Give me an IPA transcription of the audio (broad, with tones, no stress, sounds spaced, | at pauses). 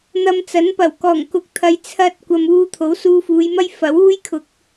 n̪ ɐ˧ m t͡s ɐ˨˥ n p ɐ˨˩ w k ɔː˨˩ ŋ k ʊ˨˥ k̚ t̪ʰ ɐ˨ j t͡sʰ ɐ˧ t̚ kʷ ɐ˨ m uː˧ t̪ʰ o˨˥ w s uː˧ f uː˨˧ j m ɐ˥ j f ɐ˨˥ w uː˥ j kʰ ʊ˨ k̚